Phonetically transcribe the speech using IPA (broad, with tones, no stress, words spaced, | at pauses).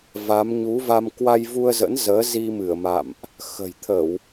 va˨˦m ɲu˨˦va˧m kwa˧jvu˧ə̯zə̰˧˥n zəː˨˦zi˧ mɨ˧˩ə̯ma̰˧˨mʔ | xə̤˨˩jt̪ʰə˧˩˨w